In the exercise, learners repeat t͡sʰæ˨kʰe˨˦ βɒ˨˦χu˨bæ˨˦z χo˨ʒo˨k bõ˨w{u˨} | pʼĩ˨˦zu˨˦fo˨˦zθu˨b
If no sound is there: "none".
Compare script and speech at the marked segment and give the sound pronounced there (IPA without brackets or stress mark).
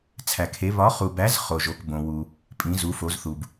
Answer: u˨